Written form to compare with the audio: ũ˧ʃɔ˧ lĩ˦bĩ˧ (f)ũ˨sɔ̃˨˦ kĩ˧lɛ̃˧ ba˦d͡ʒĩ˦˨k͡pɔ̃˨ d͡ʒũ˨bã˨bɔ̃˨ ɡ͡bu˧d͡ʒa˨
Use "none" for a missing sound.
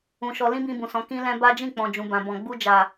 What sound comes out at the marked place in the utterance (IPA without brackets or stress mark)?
b